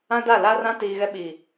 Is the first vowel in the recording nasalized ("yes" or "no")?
yes